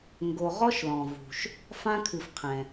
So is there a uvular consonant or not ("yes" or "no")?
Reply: yes